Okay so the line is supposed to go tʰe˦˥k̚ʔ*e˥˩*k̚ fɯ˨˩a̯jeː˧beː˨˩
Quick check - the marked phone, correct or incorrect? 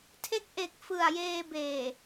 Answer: incorrect